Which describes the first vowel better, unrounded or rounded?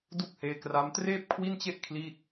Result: rounded